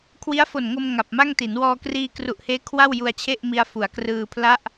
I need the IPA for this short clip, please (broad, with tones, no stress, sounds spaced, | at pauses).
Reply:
kʰ w i˦˥ a̯ f o˨˩ n ŋ o˧ m ŋ a˨˩ p̚ m a˥˩ ŋ t i˩˦ n w ɔː˧ k r iː˧ k r u˨˩ ʔ h eː˦˥ kʰ w a˥˩ w j u˧ a̯ t͡ɕʰ e˥˩ ʔ m i˧ a̯ f u˩˦ a̯ k r ɯː˧ pʰ l a˥˩ ʔ